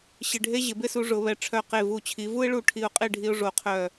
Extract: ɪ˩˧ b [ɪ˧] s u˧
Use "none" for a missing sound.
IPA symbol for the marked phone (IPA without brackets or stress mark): ɪ˥˧